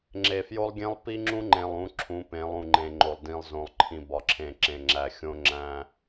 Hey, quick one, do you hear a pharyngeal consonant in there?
no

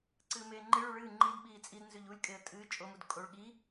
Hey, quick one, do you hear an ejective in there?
yes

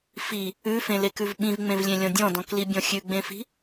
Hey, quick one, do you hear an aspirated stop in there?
no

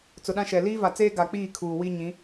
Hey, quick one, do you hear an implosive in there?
yes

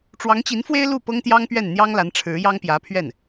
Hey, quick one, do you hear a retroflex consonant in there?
yes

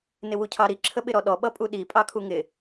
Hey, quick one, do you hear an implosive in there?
yes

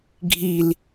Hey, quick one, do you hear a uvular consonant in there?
no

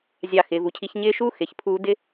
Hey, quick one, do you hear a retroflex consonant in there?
no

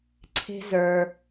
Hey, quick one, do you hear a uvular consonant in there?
no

